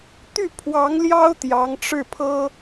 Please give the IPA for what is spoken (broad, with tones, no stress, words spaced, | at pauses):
t̪y˥˩pʰwɑ˧˥ŋ ljɑ˥ʊ̯t̪jɑ˧˥ŋʈ͡ʂɻ̩˥˩pʰɤ˥